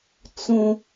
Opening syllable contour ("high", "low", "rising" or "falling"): high